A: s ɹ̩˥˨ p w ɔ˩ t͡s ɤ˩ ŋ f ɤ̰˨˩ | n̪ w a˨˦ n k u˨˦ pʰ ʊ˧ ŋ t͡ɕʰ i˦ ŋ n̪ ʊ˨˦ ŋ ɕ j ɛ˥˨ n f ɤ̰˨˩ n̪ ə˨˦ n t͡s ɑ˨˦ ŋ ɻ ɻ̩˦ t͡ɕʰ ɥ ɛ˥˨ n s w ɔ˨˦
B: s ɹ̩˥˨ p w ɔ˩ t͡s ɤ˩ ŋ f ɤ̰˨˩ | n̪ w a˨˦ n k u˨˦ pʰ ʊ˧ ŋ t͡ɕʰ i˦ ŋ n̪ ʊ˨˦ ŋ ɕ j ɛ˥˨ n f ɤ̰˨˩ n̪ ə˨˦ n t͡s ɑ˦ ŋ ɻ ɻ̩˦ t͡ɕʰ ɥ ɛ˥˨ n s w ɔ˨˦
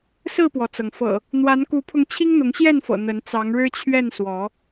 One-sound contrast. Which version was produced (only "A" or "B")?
A